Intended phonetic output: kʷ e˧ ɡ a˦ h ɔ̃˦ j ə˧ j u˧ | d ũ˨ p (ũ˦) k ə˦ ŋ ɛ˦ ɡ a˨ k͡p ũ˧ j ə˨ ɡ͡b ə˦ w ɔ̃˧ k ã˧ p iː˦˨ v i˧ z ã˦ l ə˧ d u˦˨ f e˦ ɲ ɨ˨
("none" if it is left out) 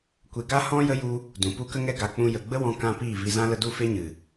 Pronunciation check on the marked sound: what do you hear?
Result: u˦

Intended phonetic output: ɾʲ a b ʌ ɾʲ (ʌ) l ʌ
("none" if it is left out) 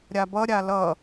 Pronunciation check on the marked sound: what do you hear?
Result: a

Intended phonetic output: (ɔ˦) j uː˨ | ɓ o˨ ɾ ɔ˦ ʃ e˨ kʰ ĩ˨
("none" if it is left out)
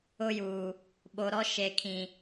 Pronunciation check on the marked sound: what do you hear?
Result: ʊ˦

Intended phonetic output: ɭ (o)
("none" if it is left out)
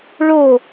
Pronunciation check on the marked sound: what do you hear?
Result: o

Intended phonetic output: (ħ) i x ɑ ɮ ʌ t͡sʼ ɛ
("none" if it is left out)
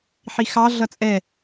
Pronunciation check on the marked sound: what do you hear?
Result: ħ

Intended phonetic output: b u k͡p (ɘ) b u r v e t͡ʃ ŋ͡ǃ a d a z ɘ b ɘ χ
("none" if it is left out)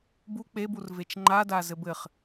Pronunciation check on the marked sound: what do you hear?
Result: e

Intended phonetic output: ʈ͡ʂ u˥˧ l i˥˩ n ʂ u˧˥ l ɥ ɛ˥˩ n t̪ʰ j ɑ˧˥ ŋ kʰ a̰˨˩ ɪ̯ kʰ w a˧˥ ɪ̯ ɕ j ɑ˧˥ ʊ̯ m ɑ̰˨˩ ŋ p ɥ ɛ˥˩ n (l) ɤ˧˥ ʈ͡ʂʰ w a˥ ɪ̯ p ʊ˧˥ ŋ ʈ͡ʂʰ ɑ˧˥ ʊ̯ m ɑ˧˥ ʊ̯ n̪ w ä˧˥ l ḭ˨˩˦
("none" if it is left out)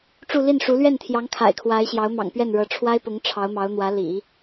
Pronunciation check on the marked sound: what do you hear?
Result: ɻ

